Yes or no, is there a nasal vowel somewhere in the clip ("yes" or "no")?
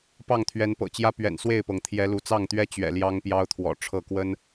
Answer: no